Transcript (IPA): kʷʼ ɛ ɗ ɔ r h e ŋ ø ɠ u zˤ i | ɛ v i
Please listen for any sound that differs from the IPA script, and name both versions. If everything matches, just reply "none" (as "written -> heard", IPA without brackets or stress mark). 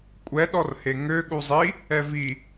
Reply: none